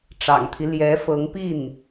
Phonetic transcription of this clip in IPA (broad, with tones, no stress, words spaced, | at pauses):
ʈ͡ʂɑ̰˨˩ŋt̪ʰi˦ ljɛ˧˥fɤ˧˥ŋpi˥˩n